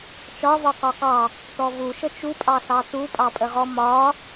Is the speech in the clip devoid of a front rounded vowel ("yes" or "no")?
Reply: yes